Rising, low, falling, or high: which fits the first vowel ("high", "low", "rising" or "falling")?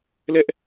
high